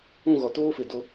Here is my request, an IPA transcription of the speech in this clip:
ũ˦˨ ɣ ɔ˨ t oː˦ f ɪ˨ d o˦

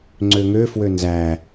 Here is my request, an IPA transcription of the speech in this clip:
ŋ͡ǀ ø ŋ ø f w ø n z æ

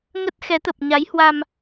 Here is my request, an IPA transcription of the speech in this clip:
ŋ ə˦˥ t̚ x ɛ˨˦ t̪ ə˨˩ p̚ ɲ a˨˦ j h w a˧ m

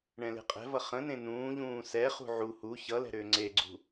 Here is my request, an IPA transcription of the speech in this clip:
ɳ ɛ̃ l e̤ qʼ ɛ̤ v ʌ χ ə̃ n ẽ n ũː ʎ ũː s ɛ χ ṳ ʕ u h u ç ʌ l ɛ̤ ɾ ʏː ŋ͡ǀ e ɡ͡ǀ ṳ

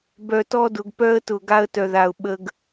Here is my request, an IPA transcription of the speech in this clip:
b œ˨ t ɔ˦ d ʊ˨ ɡ p œ˦ ə̯ t ʊ˨ ɡ a˦ ə̯ t œ˨ ð a˨ ʊ̯ ɓ ə˦ ɡ

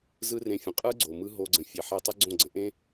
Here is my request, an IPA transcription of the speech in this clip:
z ɯ˦ r ẽ˧ fʲ ə̃˨ qʼ ɯ˦ ɡ͡ǀ o˨ m ɯ˧ ɦ o˧ ɡ͡ǀ ə̃˨ fʲ e˨ ħ e˧ tˤ ə˦ ɡ͡ǀ õ˦˨ ɡ͡ǀ ə̃˧ ʔ ẽ˦

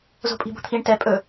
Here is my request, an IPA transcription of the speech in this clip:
z o̤ pʼ i̤ b o̤ t̪ʰ i ɳ t ɛ pʼ ɵ

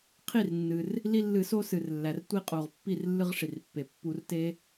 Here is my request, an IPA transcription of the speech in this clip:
qʰ i˥˩ r nː ɨ˩ r | l i˦ lː ɨ˧˩˧ s o˦ s ɨ˩ r lː æ˩ r tʷ i˦ qʼ o˩ ʁ pː i˥˩ r lː ɨ˦ ʁ ʂ i˩ r pː e˩ pː u˧˩˧ r t e˦

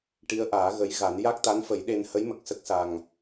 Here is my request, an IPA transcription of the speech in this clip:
ʈ i˧˥ ə̯ ʔ aː˨˩˦ ɣ ə˧˥ j ɣ a˨˩˦ n j a˦˥ k̚ t̪ a˧˥ n f ə˨˩˦ j ɗ e˧ n h ə˧˥ j m ə˨˩ k̚ s ə˦˥ k̚ s a˨˩ ŋ

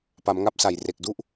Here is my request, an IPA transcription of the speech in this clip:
p a˩˦ m ŋ a˥˩ p̚ s a˨˩ j r e˨˩ k̚ d u˥˩ ʔ

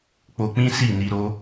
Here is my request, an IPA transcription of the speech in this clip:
k͡p o˧ k͡p ĩ˦ s i˦˨ n i˧ ɾ o˦

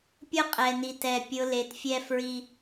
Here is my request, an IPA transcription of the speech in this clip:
pʲ ʊ˦ qʼ ɛ˨ n i˨ t ɛ˨ pʲ ʊ˨˦ l e˨ t fʲ ɛ˦ f ɹ i˦

